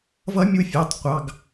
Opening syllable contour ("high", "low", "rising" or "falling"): rising